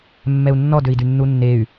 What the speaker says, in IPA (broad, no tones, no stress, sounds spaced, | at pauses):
mː ɛ u̯ nː ɔ d ø i̯ d y nː u nː e y̯